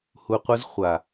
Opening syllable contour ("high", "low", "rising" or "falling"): low